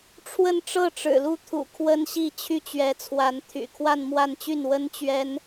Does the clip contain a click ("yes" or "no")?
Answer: no